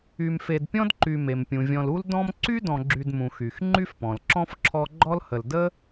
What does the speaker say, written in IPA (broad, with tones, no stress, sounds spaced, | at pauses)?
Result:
y˨ m f e˨ d pʲ ɔ̃˦ d ǃ y˨ m e˩ m pʲ ũ˩ vʲ ɔ̃˨ l u˦ l d ɔ̃˦ m ǀ y˥ d ɔ̃˨ ɡ͡ǁ y˨ d m ũ˩ x y˩ x ŋ͡ǃ y˥ f p ɔ̃˩ l ǁ ɔ̃˥ f ǁʰ ɔ˦ ɡ͡ǃ ɔ˦ l h ə˨ l d ə˥